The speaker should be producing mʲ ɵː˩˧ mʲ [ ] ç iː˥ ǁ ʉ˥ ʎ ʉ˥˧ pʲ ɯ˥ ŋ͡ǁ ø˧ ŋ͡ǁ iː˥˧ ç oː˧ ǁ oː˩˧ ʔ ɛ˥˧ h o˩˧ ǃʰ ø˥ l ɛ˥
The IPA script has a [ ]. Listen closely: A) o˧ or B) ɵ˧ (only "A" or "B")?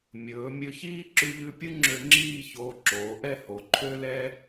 B